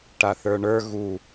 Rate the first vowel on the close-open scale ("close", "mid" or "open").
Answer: open